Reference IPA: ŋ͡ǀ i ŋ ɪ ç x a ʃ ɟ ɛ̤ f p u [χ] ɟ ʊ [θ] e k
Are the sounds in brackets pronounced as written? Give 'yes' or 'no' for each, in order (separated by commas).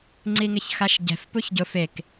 no, no